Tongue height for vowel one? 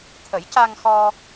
mid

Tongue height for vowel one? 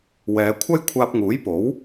mid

